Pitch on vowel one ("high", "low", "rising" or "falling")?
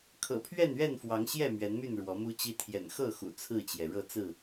low